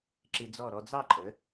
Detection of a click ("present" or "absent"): present